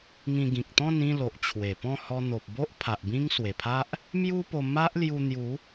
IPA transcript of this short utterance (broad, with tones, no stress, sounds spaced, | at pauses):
ŋ ĩ˧ ɡ ĩ˨ k̚ t̪ ɔ̃˥˧ n ĩ˥˧ l o˨ ʔ t͡ɕʰ w e˨˩ p ɔ̃˥˧ h ɔ˧ n̪ o˨ p̚ b o˦ ʔ pʰ a˨ ʔ b ĩ˦ ŋ s w e˨˩ pʰ a˦ ʔ | m j u˦ p o˧ m a˦ ʔ l j u˧ n̪ j u˨˦